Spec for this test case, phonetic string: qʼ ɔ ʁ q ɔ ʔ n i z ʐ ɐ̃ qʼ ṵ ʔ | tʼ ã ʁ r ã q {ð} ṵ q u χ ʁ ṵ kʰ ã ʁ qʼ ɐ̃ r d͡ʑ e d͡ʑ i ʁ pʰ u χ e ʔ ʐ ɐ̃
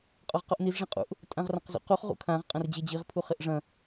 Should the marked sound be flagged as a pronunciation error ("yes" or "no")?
yes